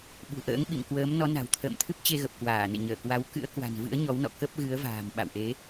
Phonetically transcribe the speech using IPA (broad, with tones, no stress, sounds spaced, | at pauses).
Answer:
ɓ ṳ˨˩ ʔ ə̰ː˧˥ ŋ ɓ ḭ˧˨ m k w əː˨˦ m n ɔ˨˦ n a̤˨˩ w t̪ʰ ə̰ː˧˨ m t̪ʰ ɨ˦˥ p̚ t͡ɕ e˧ ɣ ə˨˩ p̚ k w aː˧˩ n ḛ˧˨ ɲ əː˧˩ k w a˨˦ w k ɨ̰˧˥ ə̯ k w a̤˨˩ n v ɨ̰˧˥ ə̯ ɲ ɔ˨˦ w n ɔ̰˧˨ k ə˦˥ p̚ ɣ ɨ˨˦ ə̯ v a̤ː˨˩ m ɓ a̰˧˨ w ʔ e˨˦